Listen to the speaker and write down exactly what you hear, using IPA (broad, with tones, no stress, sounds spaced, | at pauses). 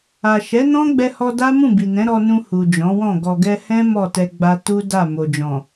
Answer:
a˨ ʃ ɛ˨˦ n ɔ̃˦ ɡ͡b ɛ˧ h ɔ˧ d a˦ m ũ˦˨ b i˨ n ɛ̃˨˦ ɾ ɔ˧ n ũ˧ h u˨ d͡ʒ ɔ̃˨˦ w ɔ̃˦˨ ɡ ɔ˨ ɡ ɛ˧ h ɛ̃˦ m ɔ˦˨ t ɛ˧ ɡ͡b a˧ t u˦ d a˦˨ m o˨ d͡ʒ ɔ̃˨